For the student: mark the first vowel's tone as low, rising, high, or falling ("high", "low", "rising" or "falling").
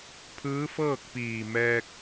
rising